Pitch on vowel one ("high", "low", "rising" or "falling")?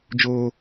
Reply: high